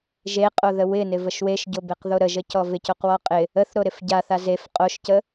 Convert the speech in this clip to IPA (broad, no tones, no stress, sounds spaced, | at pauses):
ʒ e qʼ o ð ə w ɪ n ɪ v ə ʃ w e ʃ ɟ o b e q ð o ɾ ə ʒ ə c ɔ v ɪ c o q w ɔ qʼ ɪ | ə θ ɾ o ɾ ɪ f ɟ a θ a z e f qʼ o ʃ c ə